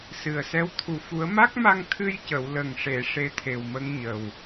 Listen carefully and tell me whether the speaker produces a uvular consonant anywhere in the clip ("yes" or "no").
no